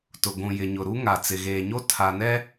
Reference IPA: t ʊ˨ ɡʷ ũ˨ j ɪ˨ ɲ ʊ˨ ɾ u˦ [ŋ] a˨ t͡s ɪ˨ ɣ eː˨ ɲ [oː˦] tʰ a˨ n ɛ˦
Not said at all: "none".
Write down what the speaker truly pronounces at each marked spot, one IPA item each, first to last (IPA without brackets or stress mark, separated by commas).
ŋ, o˦